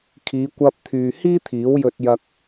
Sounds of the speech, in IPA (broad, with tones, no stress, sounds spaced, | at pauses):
kʰ iː˨˧ kʷ ɐ˧ p̚ t̪ʰ yː˨ h iː˥ t̪ʰ iː˨˥ w j ɵ˧ t̚ j ɐ˧ k̚